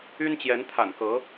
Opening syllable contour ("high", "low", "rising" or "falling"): high